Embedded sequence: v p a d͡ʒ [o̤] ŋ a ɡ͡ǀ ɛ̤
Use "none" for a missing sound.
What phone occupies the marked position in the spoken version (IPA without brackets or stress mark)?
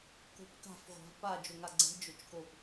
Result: o